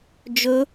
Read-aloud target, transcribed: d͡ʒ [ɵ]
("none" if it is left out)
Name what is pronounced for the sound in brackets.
ɵ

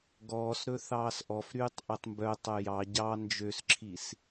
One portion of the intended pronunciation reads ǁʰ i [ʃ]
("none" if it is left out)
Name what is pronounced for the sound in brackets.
s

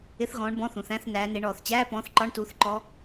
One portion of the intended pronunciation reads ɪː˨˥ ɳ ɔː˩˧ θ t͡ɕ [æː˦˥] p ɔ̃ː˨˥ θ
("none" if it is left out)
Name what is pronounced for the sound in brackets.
æː˧˥˧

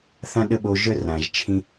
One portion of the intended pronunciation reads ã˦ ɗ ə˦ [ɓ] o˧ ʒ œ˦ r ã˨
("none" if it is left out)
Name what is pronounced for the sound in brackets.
ɓ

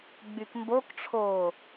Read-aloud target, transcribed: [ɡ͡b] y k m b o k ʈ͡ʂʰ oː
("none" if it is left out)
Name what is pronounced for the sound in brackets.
ɡ͡b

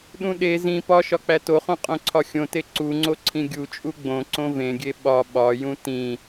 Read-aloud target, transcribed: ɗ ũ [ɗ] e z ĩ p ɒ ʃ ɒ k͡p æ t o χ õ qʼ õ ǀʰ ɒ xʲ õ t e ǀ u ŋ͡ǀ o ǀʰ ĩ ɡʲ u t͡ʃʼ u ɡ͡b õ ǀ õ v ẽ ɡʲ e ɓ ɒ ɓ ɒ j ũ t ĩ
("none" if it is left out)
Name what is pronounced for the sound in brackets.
ɗ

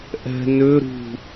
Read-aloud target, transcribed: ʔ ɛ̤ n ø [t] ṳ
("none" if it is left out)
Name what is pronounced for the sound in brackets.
ɾ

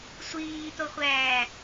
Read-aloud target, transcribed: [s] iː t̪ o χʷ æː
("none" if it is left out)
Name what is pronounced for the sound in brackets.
sʷ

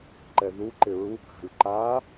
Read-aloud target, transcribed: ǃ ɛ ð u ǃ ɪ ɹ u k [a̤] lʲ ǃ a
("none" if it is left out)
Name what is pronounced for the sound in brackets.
a̤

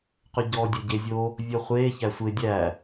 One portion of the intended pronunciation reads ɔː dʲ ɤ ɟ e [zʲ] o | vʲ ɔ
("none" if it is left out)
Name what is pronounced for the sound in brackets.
zʲ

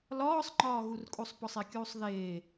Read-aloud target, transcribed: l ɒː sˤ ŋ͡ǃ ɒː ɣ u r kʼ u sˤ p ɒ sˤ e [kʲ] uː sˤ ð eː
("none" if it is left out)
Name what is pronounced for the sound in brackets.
kʲ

